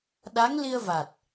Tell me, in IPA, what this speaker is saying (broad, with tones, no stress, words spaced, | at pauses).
ɗa˧˥ŋli˧ə̯va˨˩t̚